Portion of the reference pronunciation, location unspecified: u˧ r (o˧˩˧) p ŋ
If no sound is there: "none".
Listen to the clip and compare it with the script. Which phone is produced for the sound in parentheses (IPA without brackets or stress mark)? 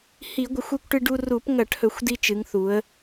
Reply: u˧˩˧